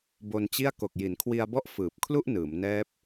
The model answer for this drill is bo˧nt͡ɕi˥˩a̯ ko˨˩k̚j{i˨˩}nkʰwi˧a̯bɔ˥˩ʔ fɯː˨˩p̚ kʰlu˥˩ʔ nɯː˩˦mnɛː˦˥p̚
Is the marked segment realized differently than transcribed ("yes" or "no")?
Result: yes